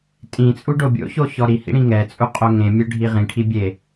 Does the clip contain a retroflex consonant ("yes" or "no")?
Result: yes